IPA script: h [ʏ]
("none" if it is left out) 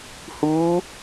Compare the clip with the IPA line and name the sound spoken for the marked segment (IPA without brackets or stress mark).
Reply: u